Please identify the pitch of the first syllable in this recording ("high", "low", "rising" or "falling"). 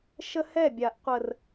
high